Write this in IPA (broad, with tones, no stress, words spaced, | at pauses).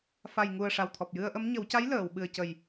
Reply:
fa˨˩jŋu˨˩ə̯ ʂa˨˩wt̪ʰɔ˨˩p̚jɨ˧ə̯ʔə˧˥m ɲə˨˩˦wca˧˥j ləː˨˩˨w ɓɨ˨˩ə̯cə˨˩j